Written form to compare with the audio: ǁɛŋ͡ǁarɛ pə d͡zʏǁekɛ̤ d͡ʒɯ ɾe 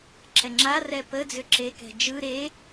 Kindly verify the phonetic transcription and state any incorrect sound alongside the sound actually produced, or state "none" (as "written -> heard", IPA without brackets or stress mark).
none